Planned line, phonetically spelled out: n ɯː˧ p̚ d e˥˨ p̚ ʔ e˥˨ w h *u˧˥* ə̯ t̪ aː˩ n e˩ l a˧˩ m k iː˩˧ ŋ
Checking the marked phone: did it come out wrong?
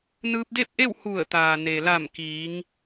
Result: yes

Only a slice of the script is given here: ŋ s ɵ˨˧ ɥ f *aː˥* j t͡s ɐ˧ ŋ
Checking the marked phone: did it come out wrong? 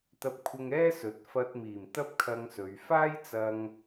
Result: no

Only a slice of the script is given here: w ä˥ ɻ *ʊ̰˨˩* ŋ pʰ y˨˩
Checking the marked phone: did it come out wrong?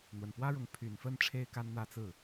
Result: yes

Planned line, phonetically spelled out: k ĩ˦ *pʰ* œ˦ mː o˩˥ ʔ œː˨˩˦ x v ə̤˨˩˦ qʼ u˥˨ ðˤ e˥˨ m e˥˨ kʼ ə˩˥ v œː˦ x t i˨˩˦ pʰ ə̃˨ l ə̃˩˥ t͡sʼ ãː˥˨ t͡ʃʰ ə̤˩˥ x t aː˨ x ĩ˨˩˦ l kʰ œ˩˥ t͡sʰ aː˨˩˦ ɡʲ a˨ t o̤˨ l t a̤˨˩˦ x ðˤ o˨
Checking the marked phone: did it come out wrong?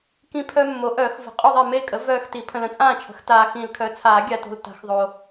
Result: no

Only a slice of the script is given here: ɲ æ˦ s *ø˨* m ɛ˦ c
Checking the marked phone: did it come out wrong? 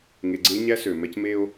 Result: no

